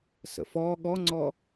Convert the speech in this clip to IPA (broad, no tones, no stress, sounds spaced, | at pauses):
s ə̰ f ɔ ɠ ɔ ŋ͡ǀ ɔ